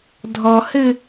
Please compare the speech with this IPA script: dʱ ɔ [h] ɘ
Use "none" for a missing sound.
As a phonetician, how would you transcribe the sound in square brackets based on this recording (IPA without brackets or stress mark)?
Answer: h